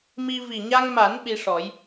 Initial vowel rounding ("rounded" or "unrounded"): unrounded